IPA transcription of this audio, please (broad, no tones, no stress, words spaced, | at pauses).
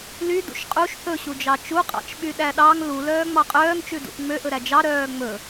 ly dṵʃqʼuʃ θɵɕud͡ʒɑ t͡ʃuqʼɑ̰t͡ʃ ɓyɗæɗɑŋ lulœː ŋ͡mɑqʼœːŋt͡ʃʉ dṵʔŋ͡møʔɵ ɾæd͡ʒɑ ɾœːŋ͡mɵ